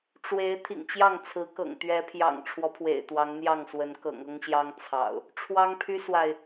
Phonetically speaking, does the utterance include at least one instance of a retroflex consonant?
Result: yes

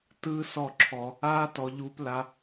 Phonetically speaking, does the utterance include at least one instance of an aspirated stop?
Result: yes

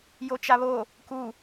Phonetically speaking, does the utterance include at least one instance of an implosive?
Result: no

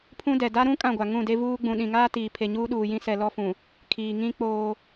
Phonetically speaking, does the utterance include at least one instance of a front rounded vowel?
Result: no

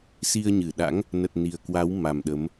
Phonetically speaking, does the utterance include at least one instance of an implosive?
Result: yes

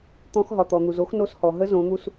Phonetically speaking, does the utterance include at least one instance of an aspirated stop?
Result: no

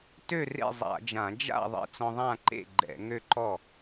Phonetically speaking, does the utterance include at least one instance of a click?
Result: yes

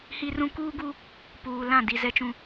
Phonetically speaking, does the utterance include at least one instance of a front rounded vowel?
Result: no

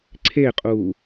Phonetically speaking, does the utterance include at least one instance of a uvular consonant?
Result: yes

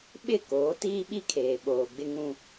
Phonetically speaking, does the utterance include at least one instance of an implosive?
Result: yes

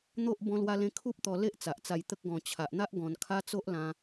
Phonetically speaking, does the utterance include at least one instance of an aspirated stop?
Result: yes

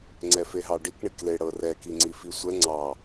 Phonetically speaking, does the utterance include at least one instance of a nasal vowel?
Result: no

